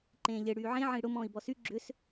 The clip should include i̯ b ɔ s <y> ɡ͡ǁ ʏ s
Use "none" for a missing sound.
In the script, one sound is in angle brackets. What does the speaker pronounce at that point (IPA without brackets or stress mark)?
y